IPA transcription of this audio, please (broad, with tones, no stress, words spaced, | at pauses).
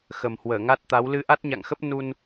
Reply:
xə˨˩mhwəː˧˩ŋa˦˥t̚t̪a˨˦w lɨ˧ʔa˦˥t̚ɲa̰˧˨ŋxə˦˥p̚ nu˧n